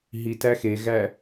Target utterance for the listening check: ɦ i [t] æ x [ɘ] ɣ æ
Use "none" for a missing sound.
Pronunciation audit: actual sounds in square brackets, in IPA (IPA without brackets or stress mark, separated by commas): t, e